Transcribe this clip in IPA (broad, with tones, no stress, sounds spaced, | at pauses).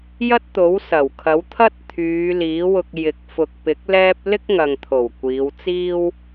j ɐ˥ t̚ t̪ o˨˥ w s ɐ˨˩ w kʰ ɐ˨˥ w t̪ʰ ɐ˥ t̚ t̪ʰ yː˨˧ l iː˨˥ w ʊ˧ k̚ j ɪ˨˥ k̚ f ʊ˨ k̚ p ɪ˨˥ k̚ l ɛː˥ p̚ l ɪ˥ k̚ ŋ ɐ˨ ŋ t̪ʰ o˨˩ w kʷ iː˨˧ w t͡s iː˥ w